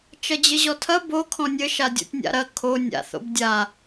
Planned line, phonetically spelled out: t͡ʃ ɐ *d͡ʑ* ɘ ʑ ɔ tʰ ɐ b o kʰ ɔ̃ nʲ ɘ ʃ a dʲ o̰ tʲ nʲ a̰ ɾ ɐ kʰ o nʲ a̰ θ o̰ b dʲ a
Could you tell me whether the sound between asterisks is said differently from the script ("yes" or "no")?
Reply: no